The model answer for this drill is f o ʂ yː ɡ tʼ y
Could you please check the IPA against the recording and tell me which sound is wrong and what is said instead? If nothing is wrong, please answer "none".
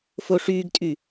none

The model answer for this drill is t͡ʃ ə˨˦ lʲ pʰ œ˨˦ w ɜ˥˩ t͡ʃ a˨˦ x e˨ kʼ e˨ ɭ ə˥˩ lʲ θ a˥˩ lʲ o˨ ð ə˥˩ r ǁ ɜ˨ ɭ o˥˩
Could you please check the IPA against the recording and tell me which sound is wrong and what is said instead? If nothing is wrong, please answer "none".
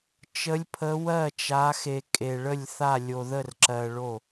œ˨˦ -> ə˨˦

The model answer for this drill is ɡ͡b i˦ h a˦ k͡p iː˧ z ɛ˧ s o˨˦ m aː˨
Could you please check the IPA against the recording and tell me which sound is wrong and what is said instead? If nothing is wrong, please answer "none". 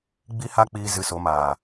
ɛ˧ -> ɨ˧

